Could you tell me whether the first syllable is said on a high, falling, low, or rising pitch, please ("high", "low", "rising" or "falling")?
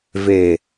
low